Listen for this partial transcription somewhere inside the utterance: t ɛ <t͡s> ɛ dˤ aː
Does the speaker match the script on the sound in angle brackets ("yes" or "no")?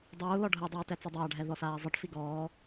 yes